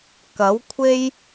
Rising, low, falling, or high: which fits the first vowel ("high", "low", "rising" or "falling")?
rising